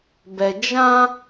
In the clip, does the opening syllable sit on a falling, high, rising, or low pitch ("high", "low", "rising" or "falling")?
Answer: low